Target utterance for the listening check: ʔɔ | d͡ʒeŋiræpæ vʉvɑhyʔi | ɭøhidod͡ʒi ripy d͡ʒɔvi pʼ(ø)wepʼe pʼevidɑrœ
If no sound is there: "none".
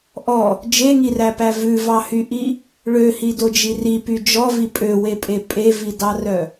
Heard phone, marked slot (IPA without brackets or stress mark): ø